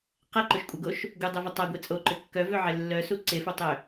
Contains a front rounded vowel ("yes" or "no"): yes